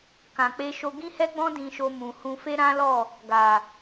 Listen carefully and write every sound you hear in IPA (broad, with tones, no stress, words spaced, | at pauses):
kã˨k͡pe˧ʃo˧ ɡĩ˦hɛ˦ɡ͡bɔ̃˦ dĩ˧ʃo˧mũ˨hũ˧ fe˦ɾã˦lɔ˦˨ | ɡa˨